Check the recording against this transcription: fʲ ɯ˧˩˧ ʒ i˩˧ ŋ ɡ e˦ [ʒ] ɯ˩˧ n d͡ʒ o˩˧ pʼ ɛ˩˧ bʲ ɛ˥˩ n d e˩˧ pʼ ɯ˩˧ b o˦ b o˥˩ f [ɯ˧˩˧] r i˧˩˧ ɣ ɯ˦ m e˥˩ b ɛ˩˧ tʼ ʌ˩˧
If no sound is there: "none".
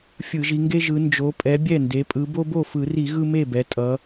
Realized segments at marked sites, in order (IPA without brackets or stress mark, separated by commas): ʒ, ɯ˧˩˧